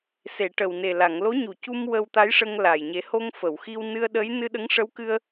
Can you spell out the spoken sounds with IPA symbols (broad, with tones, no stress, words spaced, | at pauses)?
se˨˩˨ʈə˨˩wne˨˩ la˨˩˨ŋlo˧˥ɲu˨˩cu˧m wə˧wt̪a˧˥jʂə˧ŋ la˨˩j ɲe˨˩˦ho˧ŋ fə˨˩˨wxi˧w nɨ˧ə̯ɗə˧˥j nɨ˧ɗə˧˥ŋʂə˧˥wkɨ˧ə̯